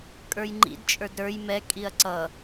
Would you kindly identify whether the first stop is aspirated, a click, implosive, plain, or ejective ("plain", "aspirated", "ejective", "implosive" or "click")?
ejective